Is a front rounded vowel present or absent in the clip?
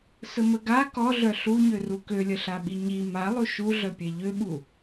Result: present